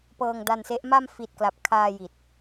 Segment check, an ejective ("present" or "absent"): absent